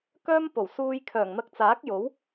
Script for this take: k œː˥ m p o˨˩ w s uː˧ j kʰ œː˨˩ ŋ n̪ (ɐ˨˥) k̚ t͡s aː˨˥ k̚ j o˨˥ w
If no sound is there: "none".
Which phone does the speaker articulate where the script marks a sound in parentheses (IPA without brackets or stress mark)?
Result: ɐ˧